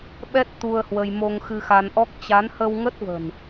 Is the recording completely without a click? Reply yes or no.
yes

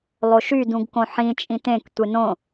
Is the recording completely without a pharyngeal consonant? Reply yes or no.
no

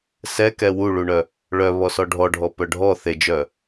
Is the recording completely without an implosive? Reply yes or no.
yes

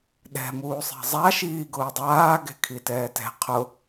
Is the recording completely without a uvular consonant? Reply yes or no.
no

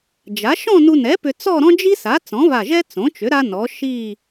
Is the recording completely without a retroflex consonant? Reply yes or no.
yes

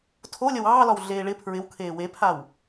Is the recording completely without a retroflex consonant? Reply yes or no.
no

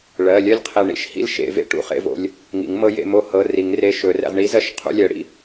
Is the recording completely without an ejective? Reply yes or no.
yes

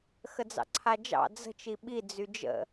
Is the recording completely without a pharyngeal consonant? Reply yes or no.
yes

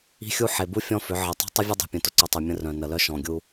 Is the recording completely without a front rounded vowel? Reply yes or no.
no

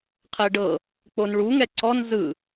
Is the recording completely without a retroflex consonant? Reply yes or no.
no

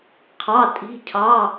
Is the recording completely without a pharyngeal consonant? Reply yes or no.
yes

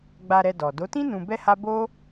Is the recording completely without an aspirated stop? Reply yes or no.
yes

